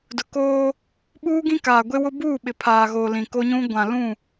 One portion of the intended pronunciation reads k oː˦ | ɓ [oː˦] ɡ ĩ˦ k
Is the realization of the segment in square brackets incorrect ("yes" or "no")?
yes